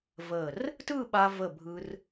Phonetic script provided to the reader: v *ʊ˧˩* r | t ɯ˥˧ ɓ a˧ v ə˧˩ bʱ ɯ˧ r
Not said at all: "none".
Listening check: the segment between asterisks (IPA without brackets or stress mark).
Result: ə˧˩